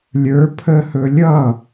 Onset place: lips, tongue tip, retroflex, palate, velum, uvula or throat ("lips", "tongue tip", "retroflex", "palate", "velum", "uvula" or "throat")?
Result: tongue tip